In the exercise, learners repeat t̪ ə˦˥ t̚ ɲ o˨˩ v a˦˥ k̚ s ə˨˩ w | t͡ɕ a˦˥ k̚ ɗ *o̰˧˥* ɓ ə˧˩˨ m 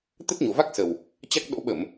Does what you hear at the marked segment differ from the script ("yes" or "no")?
no